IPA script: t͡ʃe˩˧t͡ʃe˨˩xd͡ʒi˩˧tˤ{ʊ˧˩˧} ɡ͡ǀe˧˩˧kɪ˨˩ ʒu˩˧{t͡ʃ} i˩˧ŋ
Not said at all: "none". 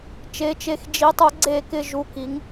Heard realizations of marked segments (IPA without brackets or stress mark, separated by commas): ʊ˧˩˧, k